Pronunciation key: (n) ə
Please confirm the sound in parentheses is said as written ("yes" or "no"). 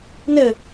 yes